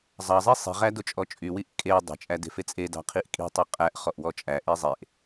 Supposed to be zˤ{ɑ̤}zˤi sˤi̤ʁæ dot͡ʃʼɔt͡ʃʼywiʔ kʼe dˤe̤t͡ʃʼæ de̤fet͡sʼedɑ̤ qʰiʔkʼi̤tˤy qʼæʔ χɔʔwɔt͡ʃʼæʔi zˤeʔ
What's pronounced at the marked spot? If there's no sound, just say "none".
ɑ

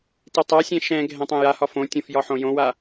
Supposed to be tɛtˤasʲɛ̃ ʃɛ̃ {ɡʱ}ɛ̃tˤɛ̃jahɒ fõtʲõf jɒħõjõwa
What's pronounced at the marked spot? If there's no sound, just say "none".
ɡʱ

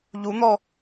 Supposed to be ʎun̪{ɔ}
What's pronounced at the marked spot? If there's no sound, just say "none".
ɔ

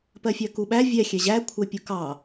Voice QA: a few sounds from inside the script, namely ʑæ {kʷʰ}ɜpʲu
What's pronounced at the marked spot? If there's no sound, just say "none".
kʷʰ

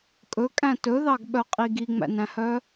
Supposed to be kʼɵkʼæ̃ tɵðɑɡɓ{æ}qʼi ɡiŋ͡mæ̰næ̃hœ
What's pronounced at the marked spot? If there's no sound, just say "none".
œ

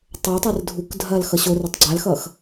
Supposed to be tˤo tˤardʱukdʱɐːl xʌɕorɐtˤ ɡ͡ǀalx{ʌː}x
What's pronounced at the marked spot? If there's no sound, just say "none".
ʌː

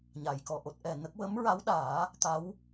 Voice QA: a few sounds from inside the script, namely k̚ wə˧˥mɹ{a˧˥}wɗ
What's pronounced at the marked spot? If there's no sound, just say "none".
a˧˥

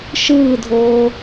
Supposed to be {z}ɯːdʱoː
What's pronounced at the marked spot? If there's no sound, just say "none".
ʃ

